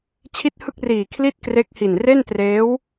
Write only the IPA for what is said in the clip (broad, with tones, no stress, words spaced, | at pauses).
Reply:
t͡ɕʰi˥˩t̚hɯ˥˩k̚riː˨˩ kʰli˥˩t̚kre˦˥k̚hi˨˩n re˥˩ntreː˦˥w